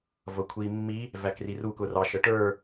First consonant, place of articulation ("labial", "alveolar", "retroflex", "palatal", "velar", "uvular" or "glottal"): labial